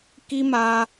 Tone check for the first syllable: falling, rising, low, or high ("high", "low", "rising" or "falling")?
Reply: high